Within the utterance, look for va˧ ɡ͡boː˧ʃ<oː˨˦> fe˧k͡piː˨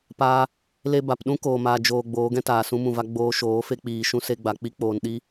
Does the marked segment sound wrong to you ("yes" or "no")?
no